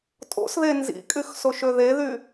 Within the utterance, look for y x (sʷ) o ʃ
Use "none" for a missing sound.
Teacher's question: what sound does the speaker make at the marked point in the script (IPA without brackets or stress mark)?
s